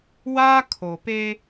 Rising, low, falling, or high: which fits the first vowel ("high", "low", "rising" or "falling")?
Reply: high